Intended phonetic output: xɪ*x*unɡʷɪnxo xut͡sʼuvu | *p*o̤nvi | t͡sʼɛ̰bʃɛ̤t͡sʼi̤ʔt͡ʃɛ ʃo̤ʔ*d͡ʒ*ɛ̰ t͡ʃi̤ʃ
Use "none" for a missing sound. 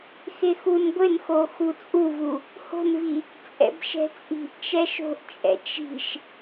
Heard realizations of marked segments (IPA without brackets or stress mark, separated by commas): x, h, t͡ʃʼ